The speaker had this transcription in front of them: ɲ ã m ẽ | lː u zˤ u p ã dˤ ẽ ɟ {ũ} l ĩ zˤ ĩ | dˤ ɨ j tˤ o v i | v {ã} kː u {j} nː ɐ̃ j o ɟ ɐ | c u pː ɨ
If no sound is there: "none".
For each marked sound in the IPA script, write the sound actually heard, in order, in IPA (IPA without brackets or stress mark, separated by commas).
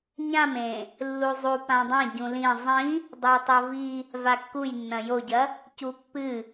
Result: ũ, a, j